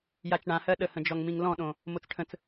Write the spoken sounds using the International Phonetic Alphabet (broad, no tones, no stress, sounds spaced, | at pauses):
j a t͡ʃ ɳ ã h ɜ ɗ ə h ə̃ d͡ʒ ɔ ŋ m ĩ ŋ l ɔ̃ ɗ õ | m o t͡s ʈʰ ə̃ t͡s